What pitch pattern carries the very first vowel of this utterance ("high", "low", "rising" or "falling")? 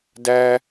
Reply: high